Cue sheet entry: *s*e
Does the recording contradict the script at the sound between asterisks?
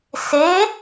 no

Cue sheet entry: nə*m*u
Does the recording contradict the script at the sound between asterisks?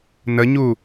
yes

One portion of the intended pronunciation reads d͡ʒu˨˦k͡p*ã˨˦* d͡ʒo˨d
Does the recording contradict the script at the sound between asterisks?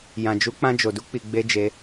yes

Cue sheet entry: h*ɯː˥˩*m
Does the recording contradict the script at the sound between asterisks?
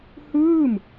no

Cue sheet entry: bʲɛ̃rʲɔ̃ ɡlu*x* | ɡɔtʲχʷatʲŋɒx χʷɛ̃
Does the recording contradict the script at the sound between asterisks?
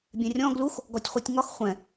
no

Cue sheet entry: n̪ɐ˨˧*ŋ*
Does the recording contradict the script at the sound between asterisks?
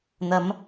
yes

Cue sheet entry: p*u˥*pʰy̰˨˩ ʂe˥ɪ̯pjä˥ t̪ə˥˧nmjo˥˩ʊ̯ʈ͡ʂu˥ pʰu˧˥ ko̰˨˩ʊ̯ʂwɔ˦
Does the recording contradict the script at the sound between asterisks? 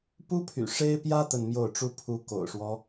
no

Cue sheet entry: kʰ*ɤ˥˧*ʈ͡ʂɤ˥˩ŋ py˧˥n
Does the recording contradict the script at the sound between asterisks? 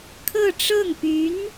no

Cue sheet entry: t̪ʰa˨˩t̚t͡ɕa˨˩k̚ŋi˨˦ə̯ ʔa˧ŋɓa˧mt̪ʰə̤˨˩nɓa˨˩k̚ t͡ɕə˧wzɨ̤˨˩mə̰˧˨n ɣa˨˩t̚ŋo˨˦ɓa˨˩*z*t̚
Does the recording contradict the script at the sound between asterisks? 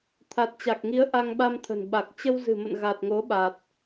yes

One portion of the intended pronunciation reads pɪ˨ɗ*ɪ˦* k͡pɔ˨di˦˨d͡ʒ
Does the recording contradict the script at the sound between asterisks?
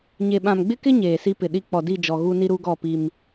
yes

